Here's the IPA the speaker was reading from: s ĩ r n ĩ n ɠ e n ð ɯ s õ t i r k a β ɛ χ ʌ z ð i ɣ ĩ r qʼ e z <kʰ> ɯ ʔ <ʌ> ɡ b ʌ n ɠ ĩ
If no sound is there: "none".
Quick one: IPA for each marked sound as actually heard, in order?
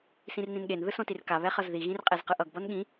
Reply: q, ʌ

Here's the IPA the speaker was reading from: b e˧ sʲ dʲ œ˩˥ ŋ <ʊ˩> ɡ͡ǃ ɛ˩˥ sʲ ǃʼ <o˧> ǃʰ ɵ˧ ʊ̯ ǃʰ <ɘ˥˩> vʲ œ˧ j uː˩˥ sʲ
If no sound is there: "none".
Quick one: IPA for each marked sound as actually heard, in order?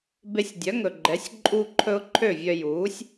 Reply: ɵ˩, u˧, ø˥˩

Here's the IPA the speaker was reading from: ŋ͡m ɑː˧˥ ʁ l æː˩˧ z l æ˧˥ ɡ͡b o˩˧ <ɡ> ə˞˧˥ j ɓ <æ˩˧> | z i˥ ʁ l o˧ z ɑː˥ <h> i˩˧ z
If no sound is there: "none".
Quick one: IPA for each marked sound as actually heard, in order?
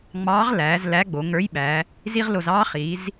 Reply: ŋ, æ˩˧, χ

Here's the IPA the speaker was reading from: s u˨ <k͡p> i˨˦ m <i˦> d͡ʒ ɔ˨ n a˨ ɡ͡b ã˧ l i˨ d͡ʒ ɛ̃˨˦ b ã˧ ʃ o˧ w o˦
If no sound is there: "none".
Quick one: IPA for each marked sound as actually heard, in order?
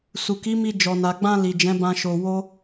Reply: k, i˧

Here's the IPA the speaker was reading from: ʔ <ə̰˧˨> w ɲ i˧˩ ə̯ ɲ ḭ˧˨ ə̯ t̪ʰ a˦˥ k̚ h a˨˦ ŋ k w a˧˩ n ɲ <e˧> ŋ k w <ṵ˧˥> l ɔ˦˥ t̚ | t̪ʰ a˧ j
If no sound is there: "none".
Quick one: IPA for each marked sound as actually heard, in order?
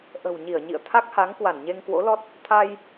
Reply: ə̤˨˩, e˧, o̰˧˥

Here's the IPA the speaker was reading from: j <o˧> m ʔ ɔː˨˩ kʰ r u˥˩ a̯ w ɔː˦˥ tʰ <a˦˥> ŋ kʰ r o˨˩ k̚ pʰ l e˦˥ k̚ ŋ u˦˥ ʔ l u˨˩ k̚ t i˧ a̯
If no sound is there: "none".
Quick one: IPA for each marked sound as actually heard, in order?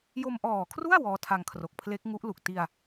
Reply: o˧, a˧

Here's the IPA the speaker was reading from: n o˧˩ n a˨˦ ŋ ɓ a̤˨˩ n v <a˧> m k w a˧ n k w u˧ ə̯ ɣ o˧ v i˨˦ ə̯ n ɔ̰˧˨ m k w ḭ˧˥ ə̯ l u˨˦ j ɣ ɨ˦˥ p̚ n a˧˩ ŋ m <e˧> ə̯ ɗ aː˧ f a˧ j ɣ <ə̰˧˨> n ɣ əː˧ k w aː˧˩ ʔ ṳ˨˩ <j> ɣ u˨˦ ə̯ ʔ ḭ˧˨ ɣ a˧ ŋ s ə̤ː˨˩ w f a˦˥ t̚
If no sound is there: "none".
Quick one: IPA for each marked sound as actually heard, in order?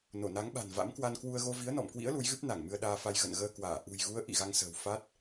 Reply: a̰˧˥, ɨ˧, ə̰˧˨, j

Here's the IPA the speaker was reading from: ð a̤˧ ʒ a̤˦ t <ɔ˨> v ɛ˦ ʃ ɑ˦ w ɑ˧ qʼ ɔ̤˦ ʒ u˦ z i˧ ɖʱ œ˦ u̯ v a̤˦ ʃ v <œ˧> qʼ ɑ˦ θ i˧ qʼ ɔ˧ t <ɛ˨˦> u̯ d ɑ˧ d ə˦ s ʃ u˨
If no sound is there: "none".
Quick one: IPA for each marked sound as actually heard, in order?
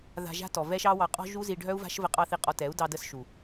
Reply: ɔ˨, ə˧, ɛ˨˦

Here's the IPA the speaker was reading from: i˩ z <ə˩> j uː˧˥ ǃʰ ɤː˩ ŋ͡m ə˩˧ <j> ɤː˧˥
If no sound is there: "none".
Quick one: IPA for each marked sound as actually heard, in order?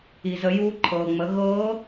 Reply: ə˩˧, ɣ

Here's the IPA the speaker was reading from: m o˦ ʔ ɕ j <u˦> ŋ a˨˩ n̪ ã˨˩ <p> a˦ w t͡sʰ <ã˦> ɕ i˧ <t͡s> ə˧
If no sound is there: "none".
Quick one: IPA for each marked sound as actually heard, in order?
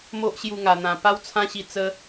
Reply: u˧, p, ã˦, t͡s

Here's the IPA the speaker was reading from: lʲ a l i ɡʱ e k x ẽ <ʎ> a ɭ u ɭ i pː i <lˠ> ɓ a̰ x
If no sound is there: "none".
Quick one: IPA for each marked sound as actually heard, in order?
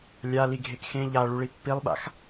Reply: ʎ, lˠ

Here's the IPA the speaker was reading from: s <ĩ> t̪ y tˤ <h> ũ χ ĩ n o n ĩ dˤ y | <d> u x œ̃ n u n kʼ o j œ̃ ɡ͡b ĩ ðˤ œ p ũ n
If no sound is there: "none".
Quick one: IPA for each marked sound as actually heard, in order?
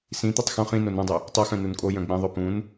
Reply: ĩ, x, tˤ

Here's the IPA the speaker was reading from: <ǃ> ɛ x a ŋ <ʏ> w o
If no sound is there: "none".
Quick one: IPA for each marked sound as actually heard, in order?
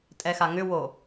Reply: tʼ, ʏ

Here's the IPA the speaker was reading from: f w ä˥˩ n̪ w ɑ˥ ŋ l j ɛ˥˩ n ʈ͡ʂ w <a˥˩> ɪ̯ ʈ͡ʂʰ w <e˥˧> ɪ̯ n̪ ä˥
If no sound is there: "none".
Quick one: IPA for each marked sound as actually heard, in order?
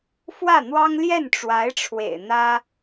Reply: a˧˥, ḛ˨˩

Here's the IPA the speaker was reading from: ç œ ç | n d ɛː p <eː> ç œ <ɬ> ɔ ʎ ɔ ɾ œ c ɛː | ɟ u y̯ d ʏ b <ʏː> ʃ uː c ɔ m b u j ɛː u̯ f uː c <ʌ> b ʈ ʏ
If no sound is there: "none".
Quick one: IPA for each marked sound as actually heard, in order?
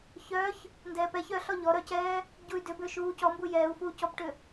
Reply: ɛː, ɬ, ʏː, ɔ

